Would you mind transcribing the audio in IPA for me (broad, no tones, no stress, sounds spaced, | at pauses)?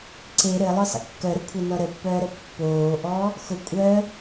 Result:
ǀ e ɾ ɘ lˠ ʊ sˤ ə̰ kː œ ɾ ʊ kʷʰ ɛ n ɔ ɾ ə pː œː ɾ ə pː oː ʔ ɔ | x ʊ kʷʼ œ